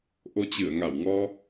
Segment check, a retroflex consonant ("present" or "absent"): absent